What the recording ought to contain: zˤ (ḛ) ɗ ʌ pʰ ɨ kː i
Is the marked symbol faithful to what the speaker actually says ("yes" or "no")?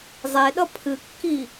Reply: no